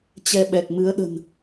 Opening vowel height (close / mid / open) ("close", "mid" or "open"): mid